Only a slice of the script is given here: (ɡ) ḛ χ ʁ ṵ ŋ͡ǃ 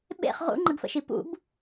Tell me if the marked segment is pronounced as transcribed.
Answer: no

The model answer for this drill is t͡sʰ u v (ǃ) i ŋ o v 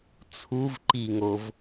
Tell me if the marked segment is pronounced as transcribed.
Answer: yes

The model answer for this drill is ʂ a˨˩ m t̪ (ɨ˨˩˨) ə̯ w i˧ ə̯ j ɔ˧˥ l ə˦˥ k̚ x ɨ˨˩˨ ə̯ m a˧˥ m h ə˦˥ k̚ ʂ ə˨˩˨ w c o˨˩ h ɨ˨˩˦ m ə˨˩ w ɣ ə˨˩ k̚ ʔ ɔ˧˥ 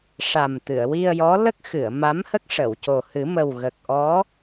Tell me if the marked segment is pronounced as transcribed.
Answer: yes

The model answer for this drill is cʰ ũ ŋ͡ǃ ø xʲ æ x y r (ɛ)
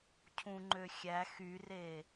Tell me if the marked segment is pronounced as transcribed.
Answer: no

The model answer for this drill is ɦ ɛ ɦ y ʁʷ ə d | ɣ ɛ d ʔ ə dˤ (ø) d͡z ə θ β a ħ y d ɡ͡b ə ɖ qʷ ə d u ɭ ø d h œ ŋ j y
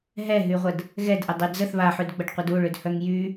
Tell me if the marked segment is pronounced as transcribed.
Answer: no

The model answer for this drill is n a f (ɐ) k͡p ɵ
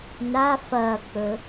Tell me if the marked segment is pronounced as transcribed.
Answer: yes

